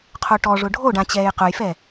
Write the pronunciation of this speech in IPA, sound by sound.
qʰ o ʈ ɔ ʐ ʊ ɖʱ o ɖ ã t͡ɕ ɛː j q ʊ j f ɛ

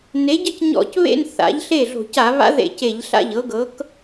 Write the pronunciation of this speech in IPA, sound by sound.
n e˩˥ ɟ ɤ˥˩ c ɲ ɔ̰˧˩˧ c β ḛ˥˧ n θ a̰˩˥ ʎ ɬ e˥˩ ɮ o̤˧˩˧ c a˧˩˧ β a̰˧˥ ð ḛ˧˩˧ c e˧˩˧ ʎ ɬ a̰˥˩ ʎ ɤ˩˥ ɡ ɤ˩˥ k

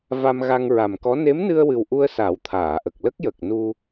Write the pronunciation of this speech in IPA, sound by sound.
v a˧ m ɣ a˧ ŋ ɹ a˨˩ m k ɔ˧˥ n e˧˥ m n ɨ˧ ə̯ w ɨ˨˩ w ʔ u˧ ə̯ s a˨˩˦ w t̪ʰ aː˨˩˨ ʔ ə˨˩ k̚ l ə˦˥ k̚ j ə˨˩ k̚ n u˧

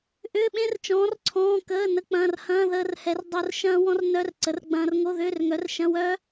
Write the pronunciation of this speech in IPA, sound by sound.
ʔ ʏː˧˥˧ ɓ ẽ˦˥ r t͡ʃ ɔ̃ː˨˥ r ǀʰ ɔ̃ː˧˥˧ k əː˧˥˧ n ə˧˥˧ k͡p ɐ̃ː˧˥˧ r h ɐ̃ː˧˥˧ ð əː˦˥ r h ɛ˨˥ r dˤ o˦˥ r ʃ ɐ̃ː˦˥ w ɔ̃˦˥ r n œ˧˥˧ r ǀ ə˨˥ r ɡ͡b ɐ̃ː˦˥ r ŋ o˧˥˧ ð ʏː˧˥˧ r ŋ œ˨˥ r ʃ ɐ̃˧˥˧ w œ˦˥

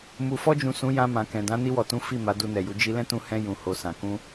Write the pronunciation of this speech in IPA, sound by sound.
m u˨ f ɔ˧ d͡ʒ ũ˨ s ũ˨˦ j ã˧ m ã˨ k ɛ̃˨ d ã˨˦ n i˧ w ɔ˨ t ũ˨˦ f i˦˨ m a˨˦ d u˧ n ɛ˨ j u˨˦ d͡ʒ i˧ l ɛ̃˦ t ũ˧ h ɛ̃˧ j ũ˨ h o˨ s ã˨ k ũ˧

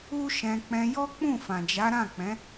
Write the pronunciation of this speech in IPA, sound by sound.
u˦ ʃ ɛ̃˧ k͡p ɛ̃˧ j ɔ˦ k͡p ũ˦˨ f ã˨ d͡ʒ a˨˦ ɾ ã˦˨ k͡p ɛ̃˨˦

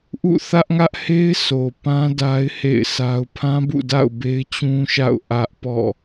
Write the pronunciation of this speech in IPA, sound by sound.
ʔ ṵ˦˨ θ ä˦ ʔ ŋ ä˦ ʔ h e˦ ɪ̯ s o˨ p ã˦ d a˦ ɪ̯ h ḛ˦˨ ɪ̯ s a˦ ʊ̯ pʰ ã˦ b ṵ˦˨ d a̰˦˨ ʊ̯ b e˦ ɪ̯ t͡ɕ ũ˦ ʃ a̰˦˨ ʊ̯ ʔ ä˦ ʔ p ɔ̰˦˨

